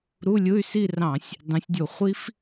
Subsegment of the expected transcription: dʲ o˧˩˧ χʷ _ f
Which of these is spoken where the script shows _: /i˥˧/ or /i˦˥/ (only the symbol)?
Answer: i˦˥